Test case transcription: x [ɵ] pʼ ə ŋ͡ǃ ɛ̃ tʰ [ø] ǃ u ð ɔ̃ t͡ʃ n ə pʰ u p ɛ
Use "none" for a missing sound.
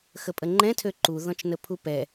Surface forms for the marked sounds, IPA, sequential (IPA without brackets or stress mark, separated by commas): ə, ø